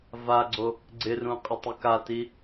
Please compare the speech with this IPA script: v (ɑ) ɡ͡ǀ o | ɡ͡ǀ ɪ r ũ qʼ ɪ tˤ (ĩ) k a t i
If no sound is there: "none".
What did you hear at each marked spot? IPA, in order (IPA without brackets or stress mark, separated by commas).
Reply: a, i